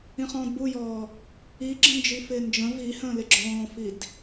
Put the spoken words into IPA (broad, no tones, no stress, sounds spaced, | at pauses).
ĩ χ ɔ̃ː d b u j ɔː | i ɡ͡ǁ ə̃ n d͡ʒ i f ɪː n d͡ʒ ə̃ v i h ə̃ː l ɪ ɡ͡ǁ ɔ̃ː f i d